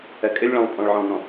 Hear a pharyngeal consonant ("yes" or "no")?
yes